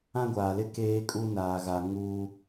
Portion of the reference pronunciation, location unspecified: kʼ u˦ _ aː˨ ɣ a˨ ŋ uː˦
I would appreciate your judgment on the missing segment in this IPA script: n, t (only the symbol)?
n